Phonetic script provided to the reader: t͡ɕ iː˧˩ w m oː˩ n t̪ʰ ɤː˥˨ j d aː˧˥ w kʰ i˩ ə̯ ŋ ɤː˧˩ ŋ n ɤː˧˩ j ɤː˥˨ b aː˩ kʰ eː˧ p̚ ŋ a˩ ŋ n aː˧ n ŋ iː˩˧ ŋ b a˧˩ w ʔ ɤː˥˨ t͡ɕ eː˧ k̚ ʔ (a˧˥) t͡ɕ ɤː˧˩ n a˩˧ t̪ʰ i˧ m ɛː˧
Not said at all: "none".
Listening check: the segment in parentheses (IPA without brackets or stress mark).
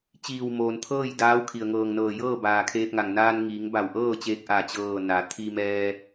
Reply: a˧˩